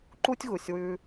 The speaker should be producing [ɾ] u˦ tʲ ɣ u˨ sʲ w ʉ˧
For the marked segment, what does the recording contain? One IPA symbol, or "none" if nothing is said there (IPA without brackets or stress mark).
ǃ